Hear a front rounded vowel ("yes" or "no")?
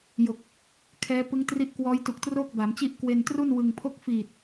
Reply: no